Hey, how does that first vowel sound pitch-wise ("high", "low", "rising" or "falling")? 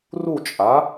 falling